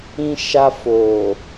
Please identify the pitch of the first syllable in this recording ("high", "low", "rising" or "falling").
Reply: high